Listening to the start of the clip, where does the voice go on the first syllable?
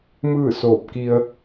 falling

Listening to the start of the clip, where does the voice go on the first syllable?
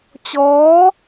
rising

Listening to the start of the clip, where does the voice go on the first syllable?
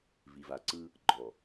low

